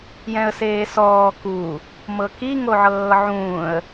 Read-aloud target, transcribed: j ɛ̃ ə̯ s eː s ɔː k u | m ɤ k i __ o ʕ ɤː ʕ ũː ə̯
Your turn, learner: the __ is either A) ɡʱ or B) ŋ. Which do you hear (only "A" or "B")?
B